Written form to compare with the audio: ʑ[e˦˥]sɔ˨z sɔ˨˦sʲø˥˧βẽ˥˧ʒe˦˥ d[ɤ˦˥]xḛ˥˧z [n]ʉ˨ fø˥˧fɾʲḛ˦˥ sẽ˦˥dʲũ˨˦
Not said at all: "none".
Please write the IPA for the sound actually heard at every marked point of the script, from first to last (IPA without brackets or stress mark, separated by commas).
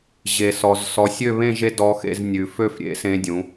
e˨, ɔ˦˥, nʲ